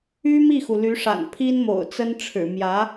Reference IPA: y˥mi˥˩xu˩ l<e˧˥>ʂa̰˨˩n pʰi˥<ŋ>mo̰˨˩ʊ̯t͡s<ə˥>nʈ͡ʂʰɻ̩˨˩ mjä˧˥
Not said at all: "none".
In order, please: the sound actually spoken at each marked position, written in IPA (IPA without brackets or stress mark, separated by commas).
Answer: y˧˥, n, ə˥